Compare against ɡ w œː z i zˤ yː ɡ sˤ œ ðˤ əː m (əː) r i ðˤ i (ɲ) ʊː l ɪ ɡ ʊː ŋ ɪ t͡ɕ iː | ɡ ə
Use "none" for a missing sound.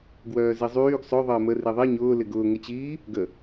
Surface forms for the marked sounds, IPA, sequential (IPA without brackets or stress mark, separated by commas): ə, ɲ